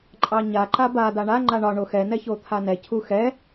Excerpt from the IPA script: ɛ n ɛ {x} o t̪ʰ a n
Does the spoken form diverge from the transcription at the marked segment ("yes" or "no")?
yes